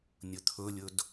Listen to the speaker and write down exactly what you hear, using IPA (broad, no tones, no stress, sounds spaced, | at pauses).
nʲ ɵ t̪ʰ ɵ lʲ ɵ d